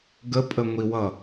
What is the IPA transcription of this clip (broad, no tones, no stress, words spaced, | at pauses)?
ɡəpʼəŋʷiwʌ